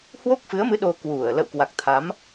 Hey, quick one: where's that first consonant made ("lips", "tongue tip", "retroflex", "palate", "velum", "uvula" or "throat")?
throat